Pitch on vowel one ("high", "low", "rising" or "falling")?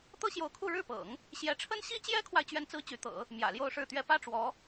high